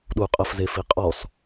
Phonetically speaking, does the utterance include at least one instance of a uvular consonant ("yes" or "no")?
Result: yes